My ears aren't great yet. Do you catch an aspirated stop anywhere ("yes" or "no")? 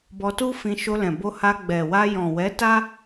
no